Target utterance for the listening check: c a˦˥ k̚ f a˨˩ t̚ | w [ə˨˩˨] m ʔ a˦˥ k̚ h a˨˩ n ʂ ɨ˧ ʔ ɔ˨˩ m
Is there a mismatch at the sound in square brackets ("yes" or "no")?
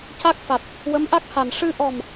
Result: yes